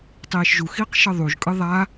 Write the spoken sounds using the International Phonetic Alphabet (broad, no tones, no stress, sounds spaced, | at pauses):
tˤ iː ʃ ʒ u x iː q ʃ ɤ ðˤ u ʒ kʼ ɯ ðˤ a